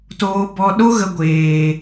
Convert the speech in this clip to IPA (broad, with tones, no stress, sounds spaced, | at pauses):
t oː˧ b ɔ˧ ɗ o˦ ɣ ə˧ ɡʷ eː˨